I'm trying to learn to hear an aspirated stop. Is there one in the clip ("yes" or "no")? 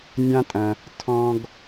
yes